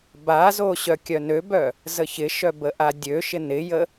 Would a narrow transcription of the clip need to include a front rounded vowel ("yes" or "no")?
yes